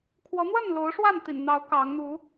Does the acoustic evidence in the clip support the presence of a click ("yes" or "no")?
no